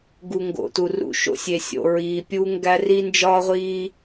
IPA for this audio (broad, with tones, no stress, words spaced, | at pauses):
ɡu˨ŋɡo̰˨ tu˨rṵ˦ ʃo̰˦sʲe˨sʲo̰˨ ɹiː˨pʲuː˦ŋɡæ˦ ri˦nd͡ʒɒː˦ʁʷiː˦